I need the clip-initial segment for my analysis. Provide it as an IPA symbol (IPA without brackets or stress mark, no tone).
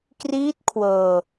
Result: k